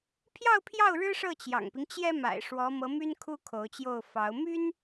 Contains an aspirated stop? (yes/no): yes